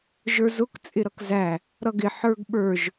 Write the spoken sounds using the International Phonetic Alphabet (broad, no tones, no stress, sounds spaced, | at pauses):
ʒ ə˞ z ʊ k t͡sʼ ɪ ɾ ʌ k z æ | ɾ ʌ ɡ ɪ ħ ə˞ ɡ ɓ ə˞ ʒ